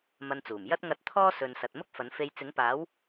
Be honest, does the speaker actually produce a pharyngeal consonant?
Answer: no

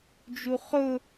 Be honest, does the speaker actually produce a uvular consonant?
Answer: yes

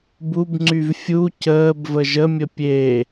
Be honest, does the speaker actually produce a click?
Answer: yes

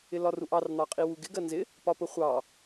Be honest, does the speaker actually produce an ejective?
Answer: yes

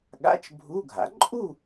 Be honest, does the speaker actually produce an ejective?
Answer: yes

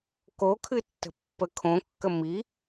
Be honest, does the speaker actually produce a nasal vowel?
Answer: yes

